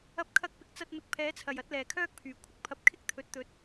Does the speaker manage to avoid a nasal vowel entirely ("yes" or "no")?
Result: yes